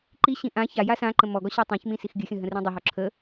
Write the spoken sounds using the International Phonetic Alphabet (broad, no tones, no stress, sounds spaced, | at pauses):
ǃ i ɕ ĩ ʔ ã ç a j a s ã ǃ ə̃ m ɔ ɡ ɔ ɕ a tˤ ã ç m ĩ s i x ɡʲ ɨ xʲ ə̃ ɦ ə̃ r ĩ dˤ ɵ ɦ ɔ ǁʰ ə